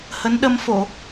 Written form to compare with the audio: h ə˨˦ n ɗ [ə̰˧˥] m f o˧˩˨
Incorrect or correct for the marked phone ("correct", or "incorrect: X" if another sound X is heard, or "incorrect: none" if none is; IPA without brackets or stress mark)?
incorrect: ə˧